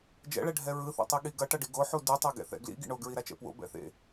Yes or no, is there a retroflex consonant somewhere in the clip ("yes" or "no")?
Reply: yes